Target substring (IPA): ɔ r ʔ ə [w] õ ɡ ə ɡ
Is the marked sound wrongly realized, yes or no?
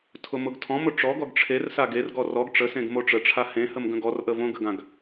yes